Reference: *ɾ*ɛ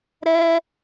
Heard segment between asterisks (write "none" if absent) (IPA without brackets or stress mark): ɾ